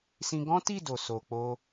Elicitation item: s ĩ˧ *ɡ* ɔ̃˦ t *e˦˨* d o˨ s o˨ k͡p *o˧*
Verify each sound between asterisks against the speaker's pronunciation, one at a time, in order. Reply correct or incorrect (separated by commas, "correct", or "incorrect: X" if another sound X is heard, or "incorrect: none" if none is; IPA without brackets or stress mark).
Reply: correct, incorrect: i˦˨, correct